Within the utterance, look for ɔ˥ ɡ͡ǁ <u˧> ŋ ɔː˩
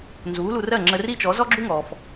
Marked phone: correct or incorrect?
incorrect